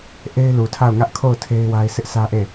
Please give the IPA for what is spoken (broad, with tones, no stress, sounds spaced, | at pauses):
ʔ e˦ ɪ̯ l u˨ tʰ a˦˨ ʊ̯ ŋ ä˦ ʔ kʰ o˦˨ ʊ̯ tʰ e˦ ɪ̯ w a˦ ɪ̯ s ɪ˦ ʔ s ä˦ ʔ e˦˨